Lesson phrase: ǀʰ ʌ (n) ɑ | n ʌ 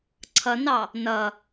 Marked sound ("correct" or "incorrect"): correct